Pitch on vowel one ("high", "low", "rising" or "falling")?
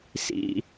high